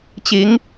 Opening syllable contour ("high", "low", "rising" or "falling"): rising